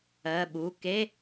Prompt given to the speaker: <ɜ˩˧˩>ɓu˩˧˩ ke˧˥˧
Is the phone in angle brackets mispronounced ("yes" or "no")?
no